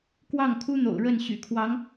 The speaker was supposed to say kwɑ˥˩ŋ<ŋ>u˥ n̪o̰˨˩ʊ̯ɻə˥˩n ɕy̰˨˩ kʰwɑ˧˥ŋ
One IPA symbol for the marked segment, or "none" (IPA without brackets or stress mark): kʰ